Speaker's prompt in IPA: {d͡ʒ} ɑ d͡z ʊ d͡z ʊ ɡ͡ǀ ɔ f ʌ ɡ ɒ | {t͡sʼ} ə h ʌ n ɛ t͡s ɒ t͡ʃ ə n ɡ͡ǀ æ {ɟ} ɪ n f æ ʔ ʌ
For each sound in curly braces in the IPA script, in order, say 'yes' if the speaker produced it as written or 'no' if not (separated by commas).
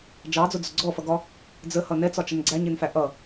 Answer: yes, no, no